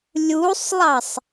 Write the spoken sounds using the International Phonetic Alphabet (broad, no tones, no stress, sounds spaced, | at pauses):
lʲ u sˤ lˠ ɑ sˤ